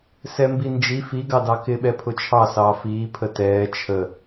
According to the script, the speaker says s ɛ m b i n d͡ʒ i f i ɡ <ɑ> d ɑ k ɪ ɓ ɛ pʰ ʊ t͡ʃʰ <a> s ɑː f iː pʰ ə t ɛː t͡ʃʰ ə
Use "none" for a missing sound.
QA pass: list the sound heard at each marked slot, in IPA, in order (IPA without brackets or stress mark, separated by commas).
ɑ, ɑ